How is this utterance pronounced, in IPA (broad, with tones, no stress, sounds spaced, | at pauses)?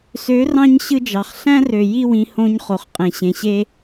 s ø˨˦ r ɑ̃˧ ɲ ɕ ɯ˦ d͡ʒ ɑ˨ χ ɬ æ̃˦ r ø˨ j i˦˨ w ĩ˦ h õ˦ ɲ χ o˨ χ qʼ ẽ˨ ɕ ẽ˨ ɕ e˦